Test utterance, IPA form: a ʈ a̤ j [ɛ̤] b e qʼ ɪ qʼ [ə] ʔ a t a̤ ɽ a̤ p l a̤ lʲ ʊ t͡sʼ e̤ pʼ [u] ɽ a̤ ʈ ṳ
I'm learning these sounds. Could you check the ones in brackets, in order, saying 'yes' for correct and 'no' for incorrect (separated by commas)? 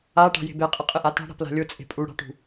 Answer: no, no, yes